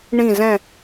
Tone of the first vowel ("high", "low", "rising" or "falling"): falling